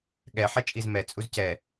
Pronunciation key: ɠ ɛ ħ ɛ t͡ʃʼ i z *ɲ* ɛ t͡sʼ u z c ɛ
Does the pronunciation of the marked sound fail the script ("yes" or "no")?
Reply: yes